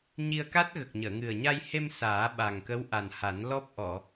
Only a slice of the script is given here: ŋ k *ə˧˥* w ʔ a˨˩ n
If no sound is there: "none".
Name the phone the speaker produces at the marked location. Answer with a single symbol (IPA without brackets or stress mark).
ə˧˥